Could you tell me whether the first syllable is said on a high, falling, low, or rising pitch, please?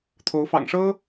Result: rising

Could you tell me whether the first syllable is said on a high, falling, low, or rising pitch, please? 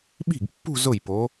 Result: falling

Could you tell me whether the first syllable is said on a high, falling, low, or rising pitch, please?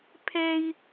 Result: high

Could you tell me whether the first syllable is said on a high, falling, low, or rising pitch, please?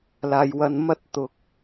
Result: low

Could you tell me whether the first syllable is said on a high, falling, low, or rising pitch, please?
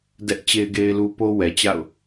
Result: high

